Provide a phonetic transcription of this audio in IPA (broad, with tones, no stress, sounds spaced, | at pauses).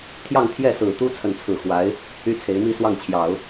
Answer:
t̪ʰ j ɑ˥˧ ŋ t̪ʰ j ɛ˥˩ s ɹ̩˨˩ t̪ u˥ t͡sʰ ə˥˧ n t͡sʰ ɹ̩˥˩ x w a˧˥ ɪ̯ | y˥ t͡sʰ e˧˥ ɪ̯ m i˥ s w ɑ˥˩ ŋ t͡ɕʰ j ɑ˨˩˦ ʊ̯